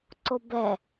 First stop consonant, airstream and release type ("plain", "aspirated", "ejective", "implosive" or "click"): click